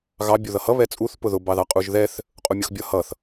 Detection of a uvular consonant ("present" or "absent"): present